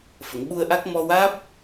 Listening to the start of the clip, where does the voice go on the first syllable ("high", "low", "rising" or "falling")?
low